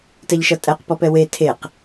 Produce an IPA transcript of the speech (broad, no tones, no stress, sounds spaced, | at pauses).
t ɛ ʎ ʃ ʌ tʼ ɛ q p ɔ p ɛ w e tʰ e q